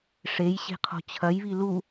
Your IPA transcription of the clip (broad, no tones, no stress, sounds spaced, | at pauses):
ʂ e j ɕ e̤ qʰ o̤ t͡ɕʰ ɐ j β i l u